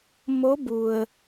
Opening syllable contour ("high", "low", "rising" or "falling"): rising